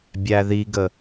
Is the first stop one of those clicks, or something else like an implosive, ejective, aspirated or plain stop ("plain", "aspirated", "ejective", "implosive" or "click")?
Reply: plain